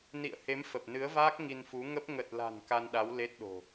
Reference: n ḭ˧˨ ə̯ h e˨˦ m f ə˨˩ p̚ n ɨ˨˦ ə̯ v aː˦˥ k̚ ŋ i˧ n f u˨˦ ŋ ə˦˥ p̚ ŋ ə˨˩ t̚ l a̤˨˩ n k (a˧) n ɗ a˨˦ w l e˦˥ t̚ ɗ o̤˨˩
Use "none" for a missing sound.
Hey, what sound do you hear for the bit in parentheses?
a˧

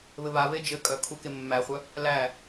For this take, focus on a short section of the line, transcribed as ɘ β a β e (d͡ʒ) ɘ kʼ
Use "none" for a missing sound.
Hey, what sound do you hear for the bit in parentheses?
d͡ʒ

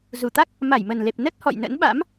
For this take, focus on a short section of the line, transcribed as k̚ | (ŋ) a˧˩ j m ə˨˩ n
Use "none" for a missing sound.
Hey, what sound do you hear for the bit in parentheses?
m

